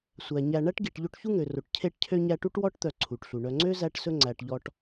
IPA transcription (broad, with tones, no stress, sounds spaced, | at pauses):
sʷ æ˩ ɲ æ˨ ɳ æ˥ ʈ ɡ i˨ ʈ ʎ o˦ ʈ ç u˥ ŋ ø˩ r o˩ ʈ cʰ e˦ ʈ cʰ ø˦ ɲ æ˦ ʈ u˥ ʈ w ɔ˥ ʈ t̪ œ˨ ǀʰ u˩ ʈ ɬ u˩ ɳ œ˨ ŋ͡ǀ ø˥ z æ˦ ʈ s ɵ˦ ŋ͡ǀ æ˨ ʈ ʎ ɔ˦ ʈ